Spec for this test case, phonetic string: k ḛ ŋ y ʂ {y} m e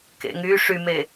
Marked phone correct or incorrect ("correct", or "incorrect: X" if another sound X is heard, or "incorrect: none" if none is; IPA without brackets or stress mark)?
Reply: correct